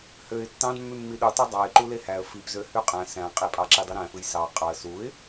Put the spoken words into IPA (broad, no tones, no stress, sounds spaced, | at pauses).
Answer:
h ø ɪ̯ tː ɑ̃ d mː y mː i ɗ u tˤ o dˤ ɑ ɪ̯ ǃ u l e h æ ə̯ f i p z ø h y qʼ æ̃ s æ̃ qʼ i pʼ ɑ ǁ i dˤ ɯ ɾ æ̃ f ɯ j s ɑ qʼ ɑ ə̯ s u ɪ̯